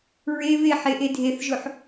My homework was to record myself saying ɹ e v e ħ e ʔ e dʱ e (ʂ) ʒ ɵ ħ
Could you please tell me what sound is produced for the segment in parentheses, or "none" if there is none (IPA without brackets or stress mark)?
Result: θ